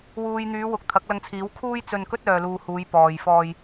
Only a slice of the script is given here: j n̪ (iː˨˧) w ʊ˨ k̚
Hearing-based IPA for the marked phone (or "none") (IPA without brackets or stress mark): yː˨˧